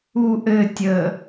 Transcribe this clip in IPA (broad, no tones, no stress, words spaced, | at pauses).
u ʔɘ tʲə